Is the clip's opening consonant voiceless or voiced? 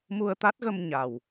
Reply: voiced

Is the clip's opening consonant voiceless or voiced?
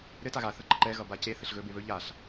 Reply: voiced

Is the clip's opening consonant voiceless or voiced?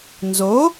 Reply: voiced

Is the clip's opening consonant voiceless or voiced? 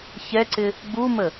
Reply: voiceless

